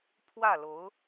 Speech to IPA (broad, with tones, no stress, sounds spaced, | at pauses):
pʰ w ä˥˩ l o˧˥ ʊ̯